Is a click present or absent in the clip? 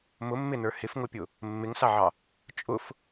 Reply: absent